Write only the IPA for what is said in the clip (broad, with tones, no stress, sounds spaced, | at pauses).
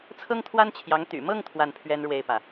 t͡sʰ ɤ˥ ŋ t̪ʰ w a˥ n t͡ɕʰ j ɑ˧˥ ŋ t̪ y̰˨˩ m ɤ˥˧ ŋ t̪ʰ w a˥˩ n pʰ ɥ ɛ˥ n ɻ w e˥˩ ɪ̯ p ä˩